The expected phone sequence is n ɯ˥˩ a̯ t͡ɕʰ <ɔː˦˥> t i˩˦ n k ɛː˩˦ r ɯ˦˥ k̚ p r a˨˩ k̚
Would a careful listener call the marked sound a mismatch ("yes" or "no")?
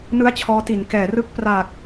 no